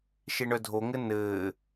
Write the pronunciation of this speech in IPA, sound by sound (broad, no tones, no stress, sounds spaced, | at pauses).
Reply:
ʃ e ɳ œ dʱ o ŋ ɘ n ɘː